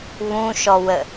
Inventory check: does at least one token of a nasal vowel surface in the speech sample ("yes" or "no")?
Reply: yes